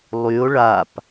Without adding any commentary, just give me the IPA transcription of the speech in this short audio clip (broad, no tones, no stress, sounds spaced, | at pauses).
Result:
lˠ y o̯ ɭ a p